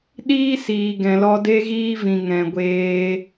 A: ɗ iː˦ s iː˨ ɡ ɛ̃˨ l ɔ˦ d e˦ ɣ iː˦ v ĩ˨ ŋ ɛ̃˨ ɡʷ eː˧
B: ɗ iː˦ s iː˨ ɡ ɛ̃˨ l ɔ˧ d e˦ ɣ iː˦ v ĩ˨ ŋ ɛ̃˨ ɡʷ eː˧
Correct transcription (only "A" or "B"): B